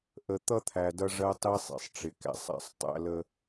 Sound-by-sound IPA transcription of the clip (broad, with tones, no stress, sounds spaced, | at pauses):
ʔ ə˨ t̪ ʌ˦ t̪ʰ æ˨ d ʌ˦ ʐ ɜ˦ tˤ i˦ sˤ ḛ˨ sˤ ʈ͡ʂ ɪ˨ k æ̰˦ sˤ æ̰˦ sˤ tˤ æ̰˦ l ə˦